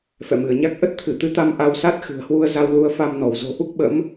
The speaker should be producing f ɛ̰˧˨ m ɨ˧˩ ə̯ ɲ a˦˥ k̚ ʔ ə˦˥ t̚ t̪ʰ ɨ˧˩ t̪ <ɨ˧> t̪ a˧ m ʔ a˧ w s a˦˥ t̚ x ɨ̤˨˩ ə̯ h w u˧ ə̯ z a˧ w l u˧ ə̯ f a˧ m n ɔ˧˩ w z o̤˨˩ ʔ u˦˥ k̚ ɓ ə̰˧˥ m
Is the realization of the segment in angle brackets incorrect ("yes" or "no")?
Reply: yes